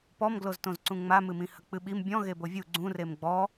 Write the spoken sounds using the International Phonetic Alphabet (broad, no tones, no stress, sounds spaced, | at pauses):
p ɔ m ɡ l o z t õ z ǀ ũ ŋ͡m a m ɨ m ĩ h ɐ k͡p ɨ ɓ i m bʲ ɔ̃ ɣ e b o vʲ u ɡ͡ǀ ũ r e m ɡ͡b ɔ